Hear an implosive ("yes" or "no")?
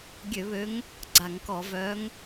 no